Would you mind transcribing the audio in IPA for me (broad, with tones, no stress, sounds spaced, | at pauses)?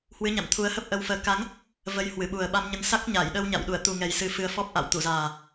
h w ɨ˨˦ ɲ a̰˧˨ m t̪ʰ u˨˦ ə̯ h ə˦˥ p̚ ʔ ə˧ w f əː˨˦ k a˨˦ ŋ | v ə˨˦ j h w ɨ˧˩ ɓ u˨˩ ə̯ ɓ a˧ m ɲ ə˧ n s a˦˥ k̚ ɲ a˧˩ j ɗ ə˧ w ɲ a̰˧˨ w ɗ u˧˩ ə̯ t̪ u˨˩ ŋ ɛ˨˩ j s ɨ˧ f ɨ˧ ə̯ f ɔ˦˥ p̚ ʔ a̰˧˨ w t̪ u˧˩ z aː˨˩